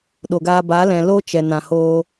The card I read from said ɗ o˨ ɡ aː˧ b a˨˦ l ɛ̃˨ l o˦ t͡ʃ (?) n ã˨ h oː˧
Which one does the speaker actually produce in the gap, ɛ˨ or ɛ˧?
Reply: ɛ˨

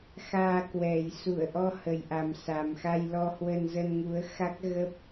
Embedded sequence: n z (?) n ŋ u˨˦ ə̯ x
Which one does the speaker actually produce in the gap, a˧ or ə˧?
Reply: ə˧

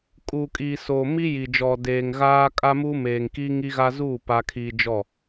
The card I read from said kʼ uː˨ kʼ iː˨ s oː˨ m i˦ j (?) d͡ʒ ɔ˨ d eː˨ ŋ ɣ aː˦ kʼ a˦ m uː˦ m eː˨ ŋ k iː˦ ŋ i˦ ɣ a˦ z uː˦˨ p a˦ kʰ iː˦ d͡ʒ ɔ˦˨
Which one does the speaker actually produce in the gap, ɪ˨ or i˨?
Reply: i˨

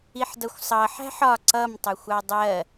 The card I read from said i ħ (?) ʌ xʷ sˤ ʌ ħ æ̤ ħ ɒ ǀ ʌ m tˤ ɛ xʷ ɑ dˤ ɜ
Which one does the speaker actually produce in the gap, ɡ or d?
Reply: d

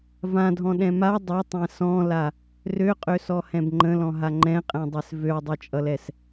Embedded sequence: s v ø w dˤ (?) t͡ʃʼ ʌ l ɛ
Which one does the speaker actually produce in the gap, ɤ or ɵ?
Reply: ɤ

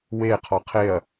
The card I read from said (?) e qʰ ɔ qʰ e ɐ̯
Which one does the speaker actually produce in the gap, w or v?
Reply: w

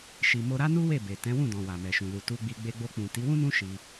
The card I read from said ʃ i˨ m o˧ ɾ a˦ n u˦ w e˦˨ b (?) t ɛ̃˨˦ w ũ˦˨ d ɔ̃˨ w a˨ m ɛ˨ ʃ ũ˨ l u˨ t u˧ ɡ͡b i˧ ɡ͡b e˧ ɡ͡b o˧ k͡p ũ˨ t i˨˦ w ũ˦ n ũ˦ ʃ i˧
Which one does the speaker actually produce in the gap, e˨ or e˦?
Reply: e˨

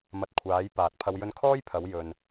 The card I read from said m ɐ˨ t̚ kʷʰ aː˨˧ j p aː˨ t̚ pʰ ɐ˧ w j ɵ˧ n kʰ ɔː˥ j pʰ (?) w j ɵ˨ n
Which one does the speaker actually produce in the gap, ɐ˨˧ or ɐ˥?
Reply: ɐ˨˧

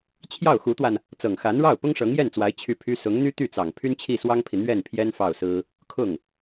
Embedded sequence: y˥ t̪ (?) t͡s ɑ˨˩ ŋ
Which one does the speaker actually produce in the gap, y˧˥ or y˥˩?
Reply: y˥˩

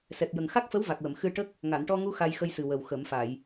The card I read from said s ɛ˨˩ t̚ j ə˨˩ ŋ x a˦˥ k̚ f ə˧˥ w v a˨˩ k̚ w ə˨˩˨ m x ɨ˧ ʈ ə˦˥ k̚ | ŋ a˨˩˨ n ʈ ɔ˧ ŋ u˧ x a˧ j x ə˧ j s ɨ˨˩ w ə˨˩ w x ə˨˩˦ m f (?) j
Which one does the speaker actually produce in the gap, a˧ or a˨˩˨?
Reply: a˨˩˨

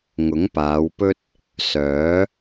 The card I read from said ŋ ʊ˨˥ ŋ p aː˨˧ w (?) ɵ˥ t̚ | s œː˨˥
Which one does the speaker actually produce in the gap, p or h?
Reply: p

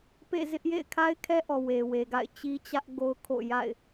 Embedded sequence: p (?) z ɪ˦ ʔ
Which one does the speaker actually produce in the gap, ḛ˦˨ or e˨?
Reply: ḛ˦˨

